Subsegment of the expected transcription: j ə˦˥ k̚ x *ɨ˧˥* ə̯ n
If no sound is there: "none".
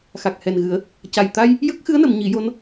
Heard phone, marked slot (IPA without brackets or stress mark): ɨ˧˥